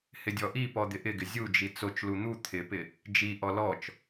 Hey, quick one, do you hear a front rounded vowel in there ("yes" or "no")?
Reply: no